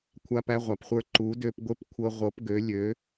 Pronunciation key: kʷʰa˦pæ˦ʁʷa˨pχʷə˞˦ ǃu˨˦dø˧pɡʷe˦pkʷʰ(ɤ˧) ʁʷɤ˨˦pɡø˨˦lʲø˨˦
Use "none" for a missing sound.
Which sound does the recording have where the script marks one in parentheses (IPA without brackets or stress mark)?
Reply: ɤ˧